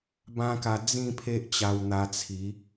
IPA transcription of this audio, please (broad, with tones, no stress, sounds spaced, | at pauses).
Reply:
b ã˦ k a˧ d͡z ĩ˥˧ pʰ e˦ ʔ t͡ɕ a˧ w n̪ a˧ t͡sʰ i˨˦